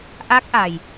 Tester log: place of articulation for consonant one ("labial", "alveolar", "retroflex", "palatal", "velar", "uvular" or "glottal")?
glottal